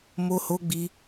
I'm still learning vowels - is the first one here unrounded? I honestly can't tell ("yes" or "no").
no